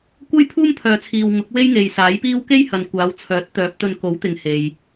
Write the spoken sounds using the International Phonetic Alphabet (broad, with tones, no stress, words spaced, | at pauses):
kʷɐ˥jpʰuː˥m pʰœː˧t͡sʰiː˧w ŋʊ˨˥k̚we˥jŋe˨j saː˨˥jpiː˥w ke˥jhɐ˨n kʷaː˨˧wt͡sʰœː˨˥t̚t̪œː˨˥p̚ t̪ɵ˧nko˨˥wt̪ɪ˨ŋ he˨j